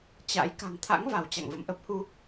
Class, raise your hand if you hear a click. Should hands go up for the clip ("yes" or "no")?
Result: no